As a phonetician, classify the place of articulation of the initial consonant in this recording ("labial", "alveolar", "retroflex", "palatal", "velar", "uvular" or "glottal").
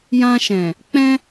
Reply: palatal